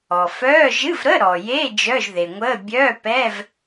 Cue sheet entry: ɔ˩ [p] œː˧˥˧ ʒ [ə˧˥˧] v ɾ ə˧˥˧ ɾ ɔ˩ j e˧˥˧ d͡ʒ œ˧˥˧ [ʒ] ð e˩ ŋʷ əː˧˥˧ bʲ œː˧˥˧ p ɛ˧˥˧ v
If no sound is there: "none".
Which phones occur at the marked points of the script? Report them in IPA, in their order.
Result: f, ɨ˧˥˧, ʒ

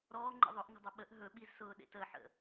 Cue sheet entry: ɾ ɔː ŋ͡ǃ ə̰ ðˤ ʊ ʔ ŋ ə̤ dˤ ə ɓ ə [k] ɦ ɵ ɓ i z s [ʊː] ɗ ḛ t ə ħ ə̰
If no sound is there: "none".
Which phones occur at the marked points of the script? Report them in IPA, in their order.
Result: ʔ, ʊː

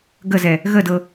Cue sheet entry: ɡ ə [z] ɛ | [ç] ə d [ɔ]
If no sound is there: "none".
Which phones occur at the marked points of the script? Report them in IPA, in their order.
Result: z, ɣ, ɤ

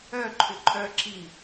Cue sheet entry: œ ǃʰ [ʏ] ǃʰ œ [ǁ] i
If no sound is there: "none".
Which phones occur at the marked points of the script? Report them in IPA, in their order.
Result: ʏ, ǁ

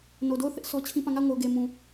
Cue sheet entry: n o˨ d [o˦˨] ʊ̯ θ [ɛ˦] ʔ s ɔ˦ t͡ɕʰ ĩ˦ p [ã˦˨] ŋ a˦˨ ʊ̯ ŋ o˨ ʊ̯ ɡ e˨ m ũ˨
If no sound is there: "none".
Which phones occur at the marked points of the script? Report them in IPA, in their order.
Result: o˦˨, ɪ˦, ã˦˨

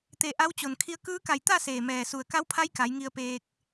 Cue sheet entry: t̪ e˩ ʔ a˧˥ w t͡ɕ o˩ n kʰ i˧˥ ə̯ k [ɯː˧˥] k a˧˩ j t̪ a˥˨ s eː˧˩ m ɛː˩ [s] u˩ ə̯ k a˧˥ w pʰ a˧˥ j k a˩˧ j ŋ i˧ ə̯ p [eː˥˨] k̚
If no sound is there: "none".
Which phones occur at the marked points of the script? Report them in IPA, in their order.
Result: ɯː˧˥, s, eː˧

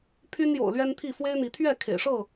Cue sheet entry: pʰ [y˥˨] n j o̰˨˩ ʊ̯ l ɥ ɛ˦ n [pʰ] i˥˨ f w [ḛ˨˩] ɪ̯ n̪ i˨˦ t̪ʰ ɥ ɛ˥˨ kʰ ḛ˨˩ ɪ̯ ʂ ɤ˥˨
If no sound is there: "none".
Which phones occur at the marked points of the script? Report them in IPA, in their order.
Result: y˦, t̪ʰ, e˦

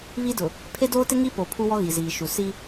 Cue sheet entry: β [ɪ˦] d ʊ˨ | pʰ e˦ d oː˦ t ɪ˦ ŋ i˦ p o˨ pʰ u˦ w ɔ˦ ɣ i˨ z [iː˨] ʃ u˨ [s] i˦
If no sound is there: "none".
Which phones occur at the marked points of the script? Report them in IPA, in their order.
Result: i˦, iː˨, s

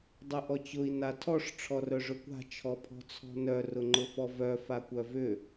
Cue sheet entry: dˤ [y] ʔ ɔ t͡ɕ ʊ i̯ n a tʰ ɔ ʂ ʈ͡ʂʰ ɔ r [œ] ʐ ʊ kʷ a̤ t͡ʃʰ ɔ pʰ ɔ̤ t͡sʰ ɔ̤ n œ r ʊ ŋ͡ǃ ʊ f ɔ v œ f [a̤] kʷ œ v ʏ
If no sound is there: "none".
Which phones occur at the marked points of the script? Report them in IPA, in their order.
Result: ʏ, œ, a

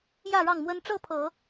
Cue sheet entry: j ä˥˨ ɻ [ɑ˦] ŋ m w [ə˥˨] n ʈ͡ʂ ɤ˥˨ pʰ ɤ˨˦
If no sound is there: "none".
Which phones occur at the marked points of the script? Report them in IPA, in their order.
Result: ɑ˥˨, ə˦

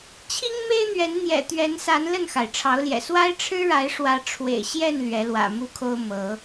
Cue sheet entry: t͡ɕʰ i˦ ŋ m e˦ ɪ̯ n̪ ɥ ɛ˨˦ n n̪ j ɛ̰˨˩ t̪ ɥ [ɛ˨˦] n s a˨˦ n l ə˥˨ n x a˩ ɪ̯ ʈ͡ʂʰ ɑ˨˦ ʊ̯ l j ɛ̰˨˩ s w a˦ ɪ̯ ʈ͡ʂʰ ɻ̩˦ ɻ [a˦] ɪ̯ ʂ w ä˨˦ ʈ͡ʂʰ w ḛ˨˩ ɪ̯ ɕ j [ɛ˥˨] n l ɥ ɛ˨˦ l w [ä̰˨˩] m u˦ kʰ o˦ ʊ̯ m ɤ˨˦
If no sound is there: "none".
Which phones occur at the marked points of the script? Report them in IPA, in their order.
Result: ɛ˨˦, a˨˦, ɛ˥˨, ä̰˨˩

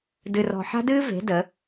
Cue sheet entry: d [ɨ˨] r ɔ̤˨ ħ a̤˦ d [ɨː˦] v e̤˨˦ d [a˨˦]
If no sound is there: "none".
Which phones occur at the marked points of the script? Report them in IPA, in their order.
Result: ɨ˨, ɨː˦, ə˨˦

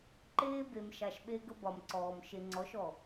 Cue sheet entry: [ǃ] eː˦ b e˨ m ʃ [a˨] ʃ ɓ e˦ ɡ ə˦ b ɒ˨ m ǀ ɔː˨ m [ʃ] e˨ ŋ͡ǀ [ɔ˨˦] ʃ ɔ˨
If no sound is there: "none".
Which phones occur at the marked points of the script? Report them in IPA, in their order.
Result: ǃ, a˨, ʃ, ɔ˨˦

